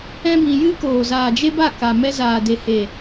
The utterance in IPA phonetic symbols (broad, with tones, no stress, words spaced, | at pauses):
ɛ̃˦bĩ˧jɨ˦ koː˨zaː˨ d͡ʒe˦ba˦˨ka˨mɛ˧ zaː˨de˨he˨